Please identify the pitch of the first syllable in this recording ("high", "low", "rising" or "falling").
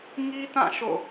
high